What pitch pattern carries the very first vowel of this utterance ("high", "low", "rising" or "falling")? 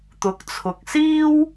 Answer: rising